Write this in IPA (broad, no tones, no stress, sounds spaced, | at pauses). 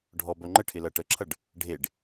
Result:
ɖʱ ɔ b œ ŋ͡ǃ ə ʈʰ ɪ l ʌ ʈ ə ǁʰ ʌ ɖ | ɖʱ e ɖ